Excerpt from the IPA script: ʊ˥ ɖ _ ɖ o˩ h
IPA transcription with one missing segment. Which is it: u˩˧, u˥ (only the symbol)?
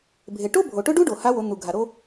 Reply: u˥